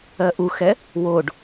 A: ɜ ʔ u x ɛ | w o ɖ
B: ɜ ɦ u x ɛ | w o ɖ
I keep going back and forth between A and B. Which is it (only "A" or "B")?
A